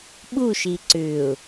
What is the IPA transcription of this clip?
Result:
ɓ u ʃ i ǀ ʏ ʊ̯

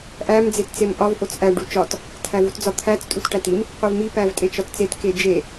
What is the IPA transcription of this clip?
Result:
ʔ æ m d͡z e t t͡s e m ʔ ɒ v ʔ o t͡s ʔ æ ɖ u t͡ʃ ɒ t | tʰ æ v u t d͡z ɒ t̪ʰ æ t͡s tʼ u t ʈ æ t i m | qʷ e v m i p æ v tʼ e t͡ʃ ɒ t t͡s e t k e d͡ʒ e

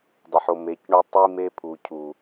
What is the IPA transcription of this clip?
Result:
dˤ ə˨ ħ o˨ m e˨˦ c ɳ u˦ tˤ i˦ m e˦ pʰ u˨ cʰ u˨

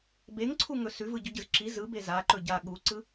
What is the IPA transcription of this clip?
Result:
b e ŋ ǀʰ u ŋ ɵ s ʉ v ɯ ɟ ɵ ɟ ɯ z ǁ i z ɯ b e z a ǃ ɵ ɟ a ɠ u ǀ ɯ

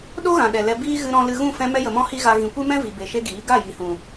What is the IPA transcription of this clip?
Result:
ɗ o˦ ɣ ã˨ ɗ ɛ˨ l ɛ˧ b iː˦ ɣ ɨ˧ ɾ ɔ̃˧ l ɨ˧ ɣ ũ˦˨ f ɛ̃˧ m ɛ˦ j ə˨ m ɔ̃˦ h i˦ ɣ a˧ ɣ ĩ˨ kʷ ɨ˦ m ɛ̃˦ v i˨ b e˨ ʃ e˦ ɡ iː˨˦ ɡ a˦˨ j i˨ h ũ˨

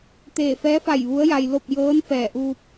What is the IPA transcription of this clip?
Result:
t̪ eː˧˩ f ɛː˧˥ f a˧˩ j ʋ u˧˥ ə̯ j a˧ j l o˥˨ p̚ j ɤː˧˥ n f ɛː˧˩ ʔ uː˧ p̚

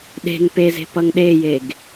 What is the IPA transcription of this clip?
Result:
ɗ e̤ ŋ p e z e̤ p ʌ ŋ ɗ e j e ɡ

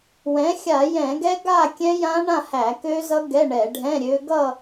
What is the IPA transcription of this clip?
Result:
w ɛ̃˩˥ xʲ a˧˩˧ j ɛ̃˧˩˧ ɡ ɛ˦˥ ɡ a˥˧ kʲ ɛ̃˦˥ j ã˦˥ ɳ ã˥˧ h æ˧˩˧ k ø˦˥ z ʌ˦˥ ɡ ɛ˧˥˧ ɳ ɛ˧˩˧ ɖʱ ɛ̃˧˥˧ ɾʲ ø˦˥ ɡ ʌ˥˧

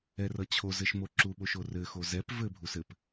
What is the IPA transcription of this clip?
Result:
ɛ r ʌ t͡ɕʰ o z ɘ ʃ m o ǁ u ɓ o ʃ o r ɘ x o z ɛ p v ɘ bʱ u s ɘ p

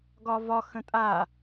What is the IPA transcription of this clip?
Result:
ɡ ɒ v ɒ x ə̃ tʼ a

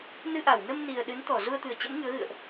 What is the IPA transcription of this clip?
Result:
n ɨ˧ ʔ a˧˩ w n ə˧ m n i˨˩ ə̯ ɗ ɨ˨˦ n t̪ ɔ˧˩ z u˧ ə̯ t̪ ɨ˨˩ ə̯ t͡ɕ ə̰˧˥ m ŋ ɨ˨˦ ə̯ ɣ ɨ̰˧˨ ə̯ ʔ

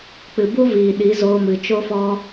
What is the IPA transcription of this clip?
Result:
k͡p ɨ˨ b u˦ v iː˨ ɗ i˨˦ z oː˧ m ɨ˨ t͡ʃ o˦ f ɔ˦

